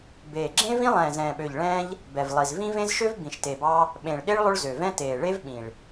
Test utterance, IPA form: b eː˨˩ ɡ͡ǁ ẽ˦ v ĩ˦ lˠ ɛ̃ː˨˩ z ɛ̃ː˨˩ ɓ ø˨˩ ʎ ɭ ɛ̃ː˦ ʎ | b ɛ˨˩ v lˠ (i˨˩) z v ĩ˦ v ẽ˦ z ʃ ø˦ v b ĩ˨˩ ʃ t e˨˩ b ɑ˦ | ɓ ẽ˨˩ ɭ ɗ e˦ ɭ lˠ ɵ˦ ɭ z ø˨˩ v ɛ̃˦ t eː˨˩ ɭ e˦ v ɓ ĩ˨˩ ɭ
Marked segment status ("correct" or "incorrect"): correct